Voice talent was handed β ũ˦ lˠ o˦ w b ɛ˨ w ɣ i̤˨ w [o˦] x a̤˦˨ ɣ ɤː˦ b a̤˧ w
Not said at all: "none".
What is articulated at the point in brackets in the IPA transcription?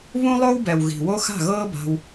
o˦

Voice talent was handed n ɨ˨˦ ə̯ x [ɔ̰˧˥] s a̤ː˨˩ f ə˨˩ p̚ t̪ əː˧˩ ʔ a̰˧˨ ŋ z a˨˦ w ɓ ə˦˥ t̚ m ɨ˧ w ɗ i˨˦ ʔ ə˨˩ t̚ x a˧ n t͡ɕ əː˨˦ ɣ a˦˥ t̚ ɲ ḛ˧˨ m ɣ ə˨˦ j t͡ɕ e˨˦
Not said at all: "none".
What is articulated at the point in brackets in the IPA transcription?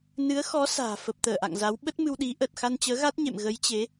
ɔ˨˦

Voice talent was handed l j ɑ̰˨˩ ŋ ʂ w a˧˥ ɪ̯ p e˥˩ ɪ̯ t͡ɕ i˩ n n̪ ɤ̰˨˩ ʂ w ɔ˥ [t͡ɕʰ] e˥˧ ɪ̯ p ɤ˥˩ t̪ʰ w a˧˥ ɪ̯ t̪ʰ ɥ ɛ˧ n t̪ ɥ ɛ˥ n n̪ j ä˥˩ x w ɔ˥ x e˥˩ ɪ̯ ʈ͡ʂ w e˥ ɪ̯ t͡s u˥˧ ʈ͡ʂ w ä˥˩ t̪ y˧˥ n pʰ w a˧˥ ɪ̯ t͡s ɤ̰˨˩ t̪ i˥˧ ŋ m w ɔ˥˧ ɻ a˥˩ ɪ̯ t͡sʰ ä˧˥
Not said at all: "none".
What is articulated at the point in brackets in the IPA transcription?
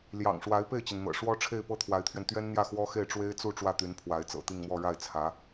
ʈ͡ʂʰ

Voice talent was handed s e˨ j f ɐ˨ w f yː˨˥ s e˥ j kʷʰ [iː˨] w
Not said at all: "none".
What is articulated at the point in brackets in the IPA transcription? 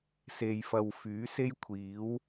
iː˨˥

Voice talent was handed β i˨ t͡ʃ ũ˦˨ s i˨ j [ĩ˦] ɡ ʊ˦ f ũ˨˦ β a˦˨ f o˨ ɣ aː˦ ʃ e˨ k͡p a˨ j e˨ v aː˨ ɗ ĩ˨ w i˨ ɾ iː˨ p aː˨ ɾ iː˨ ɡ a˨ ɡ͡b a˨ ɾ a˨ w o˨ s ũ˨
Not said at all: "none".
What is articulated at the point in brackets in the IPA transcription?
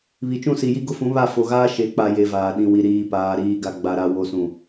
i˦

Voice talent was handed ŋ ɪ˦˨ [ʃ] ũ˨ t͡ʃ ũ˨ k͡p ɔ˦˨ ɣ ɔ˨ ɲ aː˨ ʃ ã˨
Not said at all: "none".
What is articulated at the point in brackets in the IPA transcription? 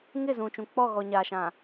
z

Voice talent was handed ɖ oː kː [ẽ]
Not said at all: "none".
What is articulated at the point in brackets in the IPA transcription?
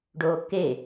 e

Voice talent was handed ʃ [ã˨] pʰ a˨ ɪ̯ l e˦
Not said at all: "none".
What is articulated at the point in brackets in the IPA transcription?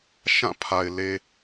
ã˦˨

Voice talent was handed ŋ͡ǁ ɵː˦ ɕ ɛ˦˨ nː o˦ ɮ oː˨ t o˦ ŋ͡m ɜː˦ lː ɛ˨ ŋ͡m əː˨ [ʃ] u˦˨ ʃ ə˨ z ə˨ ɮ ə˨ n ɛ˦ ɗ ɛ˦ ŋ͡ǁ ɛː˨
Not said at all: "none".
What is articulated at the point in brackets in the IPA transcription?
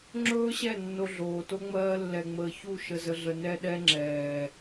ç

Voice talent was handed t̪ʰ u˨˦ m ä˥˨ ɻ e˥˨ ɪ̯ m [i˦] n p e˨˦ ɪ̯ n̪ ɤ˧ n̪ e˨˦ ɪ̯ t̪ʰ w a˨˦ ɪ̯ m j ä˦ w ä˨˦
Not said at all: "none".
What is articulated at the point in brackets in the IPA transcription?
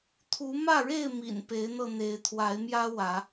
ḭ˨˩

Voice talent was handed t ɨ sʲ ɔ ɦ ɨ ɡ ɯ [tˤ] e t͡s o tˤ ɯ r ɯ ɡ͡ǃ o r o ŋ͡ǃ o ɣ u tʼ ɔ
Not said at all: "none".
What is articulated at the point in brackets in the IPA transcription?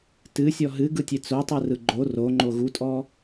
tʲ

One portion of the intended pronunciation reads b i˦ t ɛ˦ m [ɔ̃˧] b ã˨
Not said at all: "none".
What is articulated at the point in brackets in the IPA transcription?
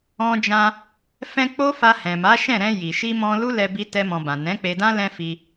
ɔ̃˧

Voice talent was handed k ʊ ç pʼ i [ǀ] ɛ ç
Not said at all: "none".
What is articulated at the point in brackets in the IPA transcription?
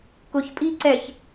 ǀ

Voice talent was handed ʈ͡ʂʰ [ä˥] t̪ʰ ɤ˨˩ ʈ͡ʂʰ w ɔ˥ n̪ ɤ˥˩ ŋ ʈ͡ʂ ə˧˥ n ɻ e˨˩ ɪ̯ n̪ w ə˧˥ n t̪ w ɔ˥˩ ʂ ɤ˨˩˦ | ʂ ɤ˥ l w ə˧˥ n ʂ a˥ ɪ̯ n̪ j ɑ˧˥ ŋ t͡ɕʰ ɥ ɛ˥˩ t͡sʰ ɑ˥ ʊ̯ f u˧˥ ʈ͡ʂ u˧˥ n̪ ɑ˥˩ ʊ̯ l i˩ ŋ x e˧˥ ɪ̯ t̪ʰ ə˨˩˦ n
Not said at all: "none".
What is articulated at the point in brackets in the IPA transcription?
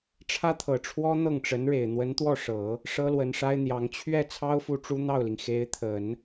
ä˥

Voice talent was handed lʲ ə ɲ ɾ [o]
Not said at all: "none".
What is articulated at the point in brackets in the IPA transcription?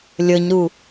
u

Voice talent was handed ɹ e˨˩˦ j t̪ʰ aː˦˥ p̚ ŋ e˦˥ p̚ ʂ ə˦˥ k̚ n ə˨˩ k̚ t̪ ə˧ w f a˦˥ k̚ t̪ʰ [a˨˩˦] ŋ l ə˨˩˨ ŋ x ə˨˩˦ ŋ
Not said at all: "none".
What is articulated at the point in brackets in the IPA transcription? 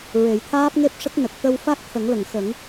ə˨˩˦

